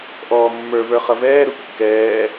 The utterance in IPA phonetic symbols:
ʔ ɔː mː ə˞ v ə˞ χ ʌ v ɛː ɾ u kː ɛː

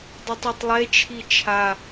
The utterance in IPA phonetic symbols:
dˤ i tˤ o tˤ lˠ e t͡ʃʰ i t͡ʃʰ a

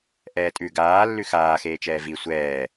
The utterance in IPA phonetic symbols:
ʔ ɛː tʼ ʉ ɡ aː lː ʉ x aː x eː t͡ʃ ɛː v i sʷ ɛː

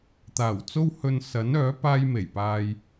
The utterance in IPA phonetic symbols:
t̪ aː˨˩ w t͡s o˥ w h ɵ˧ n s ɐ˨˥ n œː˨˥ p aː˥ j m e˨˩ j p aː˧ j

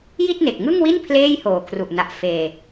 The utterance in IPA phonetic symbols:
j i˥˩ t̚ n e˨˩ k̚ ŋ ɯ˥˩ ŋ w i˥˩ n pʰ l eː˥˩ j h oː˨˩ kʰ r u˨˩ ʔ n a˨˩ ʔ f eː˨˩

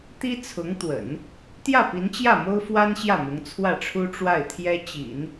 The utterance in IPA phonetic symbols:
t̪ i˥ t͡sʰ ʊ˧˥ ŋ t̪ w ə̰˨˩˦ n | t̪ j ä˥˩ p i˧˥ n t͡ɕ j ä˥˩ m o˥ ʊ̯ f w a˥ n ɕ j ä˥˩ m ʊ˧˥ ŋ t͡sʰ w ä˥˩ ʈ͡ʂʰ u˥ ʈ͡ʂ w a˥˩ ɪ̯ t̪ʰ j ɛ˥ t͡ɕ ḭ˨˩˦ n

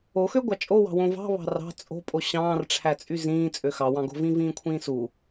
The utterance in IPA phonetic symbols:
o x ø ɡʷ ɑ t͡ʃʼ o w ɑ̤ w õ v ɑ̤ β ɑ̤ r ɑ̤ t͡sʼ o̤ pʼ o ɕ ɑ̃ː r ʈ͡ʂʰ æ t͡sʼ y z ĩː t͡sʼ ø x ɑ w ɑ̃ ɡ o̤ v ĩ v ĩː kʷʰ ĩː s u

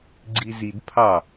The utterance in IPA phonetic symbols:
ɡ͡ǀ i z i d pʰ ɑ

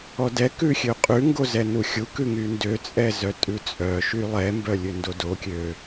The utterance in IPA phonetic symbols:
ɔ d ɛ k ʉ xʲ ø qʼ ʉ ŋ ɡ o z ɛ n u xʲ u k ʉ ŋ y n d ø t͡sʼ ɛ z œ tʼ ʉ t͡sʼ œ ʃ y lˠ ɛ m b œ lʲ ø n d o d o kʲ ø

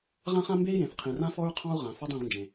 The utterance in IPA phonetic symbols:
ʁ ã˦ χ ã˦ m b e˦ i̯ j ẽ˨ θ qʰ ĩ˨ r ã˦ f ɔ˦ ɹ qʰ ɔ̃˦ u̯ ʁ ã˨ f ɔ˦ dˤ ĩ˦˨ ʁ n d͡ʒ ẽ˨

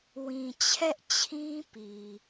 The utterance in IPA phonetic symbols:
w ĩ˨ t͡ɕʰ ɛ˦ ʔ t͡ɕʰ ĩ˦ p i˨

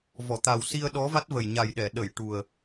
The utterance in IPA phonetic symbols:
v ɔ˨˩˨ t̪ a˨˩ w s i˧ ə̯ ɗ ɔ˧˥ v a˦˥ t̚ v ə˨˩ j ɲ a˨˩ j ɗ ɛ˨˩˨ ɗ ə˨˩˨ j ʈ u˨˩ ə̯

